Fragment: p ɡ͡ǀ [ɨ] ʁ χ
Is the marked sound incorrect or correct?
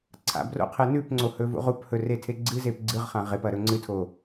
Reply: correct